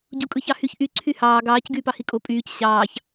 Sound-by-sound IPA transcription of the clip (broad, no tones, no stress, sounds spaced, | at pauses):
ɟ u kʼ ɯ ç ɑ h y ç ʔ y ǀʰ y h ɑː ɡ ɑː c ɡ yː p ɑ h i kʼ o pʼ yː c ɕ ɑː ç